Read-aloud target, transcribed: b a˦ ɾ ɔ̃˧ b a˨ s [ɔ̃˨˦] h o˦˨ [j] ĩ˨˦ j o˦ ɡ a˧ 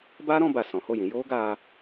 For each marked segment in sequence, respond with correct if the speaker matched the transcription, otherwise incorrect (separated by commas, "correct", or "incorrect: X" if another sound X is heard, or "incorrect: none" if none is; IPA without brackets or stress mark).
correct, correct